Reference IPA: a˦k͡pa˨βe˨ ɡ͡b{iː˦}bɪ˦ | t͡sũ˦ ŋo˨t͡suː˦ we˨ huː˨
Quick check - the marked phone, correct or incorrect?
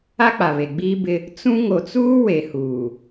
correct